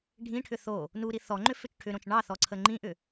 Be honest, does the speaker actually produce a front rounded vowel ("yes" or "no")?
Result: yes